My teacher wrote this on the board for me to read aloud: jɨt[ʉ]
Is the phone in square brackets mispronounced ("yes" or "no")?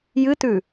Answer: no